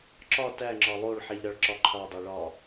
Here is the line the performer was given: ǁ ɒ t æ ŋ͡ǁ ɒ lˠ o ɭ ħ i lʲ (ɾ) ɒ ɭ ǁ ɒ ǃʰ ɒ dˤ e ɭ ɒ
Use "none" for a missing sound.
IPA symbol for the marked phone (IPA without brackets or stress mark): ɾ